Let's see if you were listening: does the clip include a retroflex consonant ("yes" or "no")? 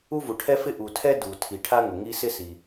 yes